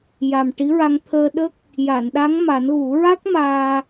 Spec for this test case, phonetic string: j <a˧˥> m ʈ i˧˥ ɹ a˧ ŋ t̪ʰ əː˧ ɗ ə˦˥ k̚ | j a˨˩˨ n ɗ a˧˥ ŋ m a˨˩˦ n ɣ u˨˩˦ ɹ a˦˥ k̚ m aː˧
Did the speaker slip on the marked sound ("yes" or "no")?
yes